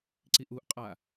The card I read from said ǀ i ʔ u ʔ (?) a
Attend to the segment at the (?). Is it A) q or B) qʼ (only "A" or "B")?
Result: B